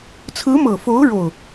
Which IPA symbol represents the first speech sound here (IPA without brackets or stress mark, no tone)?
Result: t͡sʰ